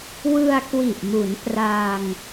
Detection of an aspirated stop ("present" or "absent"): absent